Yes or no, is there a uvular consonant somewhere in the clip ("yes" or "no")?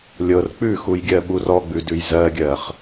yes